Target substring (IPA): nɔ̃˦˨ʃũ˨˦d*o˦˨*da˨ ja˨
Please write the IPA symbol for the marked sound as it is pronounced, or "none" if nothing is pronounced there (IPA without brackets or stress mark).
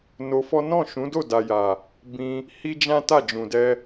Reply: o˦˨